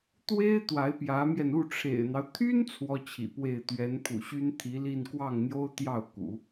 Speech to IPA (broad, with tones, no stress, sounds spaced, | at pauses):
t̪ w e˥ ɪ̯ t̪ w a˧˥ ɪ̯ p j ä˧˥ m j ɛ˧ n u˥˩ ʈ͡ʂʰ ḛ˨˩ ɪ̯ n̪ ɑ˦ ʊ̯ t̪ʰ y˥ n t͡sʰ w ɔ˥ t͡ɕʰ ḭ˨˩ p w e˥˩ ɪ̯ t̪ ɥ ɛ˧˥ n pʰ ṵ˨˩ ɕ y˥ n t̪ʰ i˧˥ l i˥˧ n k w ɑ˥˩ ŋ n̪ j o˥ ʊ̯ t̪ j ɑ˥˩ ʊ̯ k ṵ˨˩˦